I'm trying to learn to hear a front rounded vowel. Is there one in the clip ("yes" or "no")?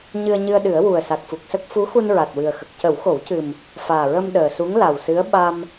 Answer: no